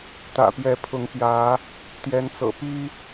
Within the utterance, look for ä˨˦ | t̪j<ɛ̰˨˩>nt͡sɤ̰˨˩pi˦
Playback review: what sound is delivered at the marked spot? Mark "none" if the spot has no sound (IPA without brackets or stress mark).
ɛ˨˦